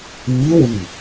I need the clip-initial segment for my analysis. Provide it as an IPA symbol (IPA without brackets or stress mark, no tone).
iː